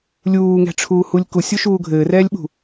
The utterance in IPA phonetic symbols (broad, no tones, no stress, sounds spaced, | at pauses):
lʲ uː ŋ ɛ̤ ʈ͡ʂʰ uː h u lʲ k u sʲ u ʃ uː ɡʱ ɘː r ɛː lʲ ɓ ṳ